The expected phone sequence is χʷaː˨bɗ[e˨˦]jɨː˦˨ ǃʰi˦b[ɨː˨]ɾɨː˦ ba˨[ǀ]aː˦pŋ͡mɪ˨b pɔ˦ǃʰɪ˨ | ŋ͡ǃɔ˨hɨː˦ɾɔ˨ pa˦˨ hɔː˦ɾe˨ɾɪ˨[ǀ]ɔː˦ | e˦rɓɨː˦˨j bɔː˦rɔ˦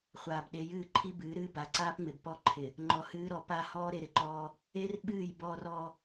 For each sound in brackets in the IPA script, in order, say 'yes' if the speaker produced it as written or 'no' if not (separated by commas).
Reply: yes, no, yes, no